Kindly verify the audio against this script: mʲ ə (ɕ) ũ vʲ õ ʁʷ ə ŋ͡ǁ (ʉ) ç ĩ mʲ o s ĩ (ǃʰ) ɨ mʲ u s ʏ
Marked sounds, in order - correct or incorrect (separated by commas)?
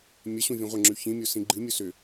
correct, correct, incorrect